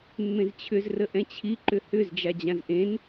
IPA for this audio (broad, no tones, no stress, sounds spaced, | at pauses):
mː ẽ z t͡ɕʰ ʏ z r ə ʔ ɛ̃ t͡ɕʰ i ǃ ʏ h ʏ z d͡ʒ a d͡ʑ ã z ʔ ẽ n